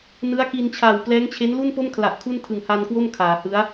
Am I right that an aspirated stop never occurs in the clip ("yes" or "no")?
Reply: no